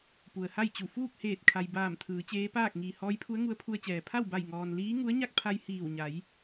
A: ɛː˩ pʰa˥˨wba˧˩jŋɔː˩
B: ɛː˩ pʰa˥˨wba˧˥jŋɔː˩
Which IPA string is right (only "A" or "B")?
A